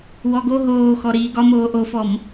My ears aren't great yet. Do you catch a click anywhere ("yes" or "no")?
no